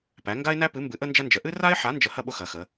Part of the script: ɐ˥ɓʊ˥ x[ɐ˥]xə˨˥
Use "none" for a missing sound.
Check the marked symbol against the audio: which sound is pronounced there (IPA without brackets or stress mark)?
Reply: ɐ˨˥